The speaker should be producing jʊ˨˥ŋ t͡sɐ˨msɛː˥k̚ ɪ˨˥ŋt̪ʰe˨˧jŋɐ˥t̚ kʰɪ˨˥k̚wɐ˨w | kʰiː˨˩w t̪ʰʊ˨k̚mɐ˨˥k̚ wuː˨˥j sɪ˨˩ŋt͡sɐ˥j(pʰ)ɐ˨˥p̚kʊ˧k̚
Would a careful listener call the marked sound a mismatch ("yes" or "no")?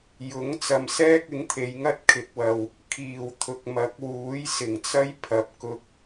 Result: no